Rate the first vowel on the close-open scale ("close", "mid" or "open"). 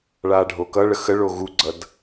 open